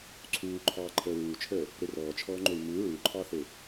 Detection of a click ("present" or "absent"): present